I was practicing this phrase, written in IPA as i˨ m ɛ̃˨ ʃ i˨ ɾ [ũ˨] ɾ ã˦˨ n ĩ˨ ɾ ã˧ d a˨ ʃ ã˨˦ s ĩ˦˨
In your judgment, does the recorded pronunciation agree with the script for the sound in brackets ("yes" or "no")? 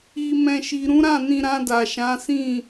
no